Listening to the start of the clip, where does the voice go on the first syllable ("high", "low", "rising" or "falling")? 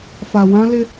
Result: low